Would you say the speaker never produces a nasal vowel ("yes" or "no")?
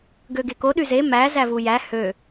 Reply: yes